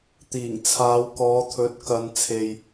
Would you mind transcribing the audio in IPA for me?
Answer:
t̪iː˨˩ŋt͡sʰaː˨˧wkɔː˨˧t̪ʰɵ˨˥t̚ kɐ˨n t͡sʰe˨j

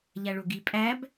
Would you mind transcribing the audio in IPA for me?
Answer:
ʎæɭoɡi pʼæb

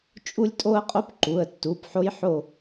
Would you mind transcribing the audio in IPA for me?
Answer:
t͡ʃʼu˦lʲtʼo˦ə̯qʼo˦p ǃu˩˧˩ə̯tːu˩˧˩p ħo˦jħo˦˨

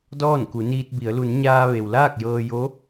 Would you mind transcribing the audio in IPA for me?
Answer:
dɔː˥˨nku˩˧niː˧t̚bi˩˧ə̯ lu˩˧nɲaː˧ ʋe˩wlaː˥˨k̚jɤː˧jo˧˥

